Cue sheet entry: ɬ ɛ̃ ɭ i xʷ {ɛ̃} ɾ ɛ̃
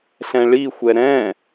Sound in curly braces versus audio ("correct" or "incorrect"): incorrect